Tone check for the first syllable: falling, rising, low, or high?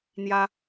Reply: high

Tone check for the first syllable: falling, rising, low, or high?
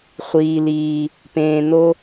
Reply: low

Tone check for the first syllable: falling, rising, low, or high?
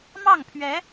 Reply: falling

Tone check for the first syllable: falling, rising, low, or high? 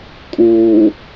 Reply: low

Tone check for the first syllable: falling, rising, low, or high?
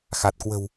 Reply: low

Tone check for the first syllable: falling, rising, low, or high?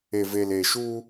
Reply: low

